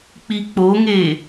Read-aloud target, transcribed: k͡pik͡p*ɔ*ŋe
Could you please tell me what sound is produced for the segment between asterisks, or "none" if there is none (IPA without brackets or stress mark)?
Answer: o